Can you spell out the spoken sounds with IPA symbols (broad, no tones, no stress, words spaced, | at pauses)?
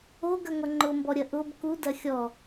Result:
oɡɐŋʷɐ ŋ͡ǃʊmbɔɾʲɐ ʔʊb kudɐ xʲɔ